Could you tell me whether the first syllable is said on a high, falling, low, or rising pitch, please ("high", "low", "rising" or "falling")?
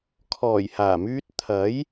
low